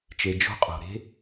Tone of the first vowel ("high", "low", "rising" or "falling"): low